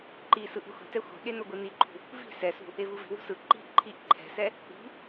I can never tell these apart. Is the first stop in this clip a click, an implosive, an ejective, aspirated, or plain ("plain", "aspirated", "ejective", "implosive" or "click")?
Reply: click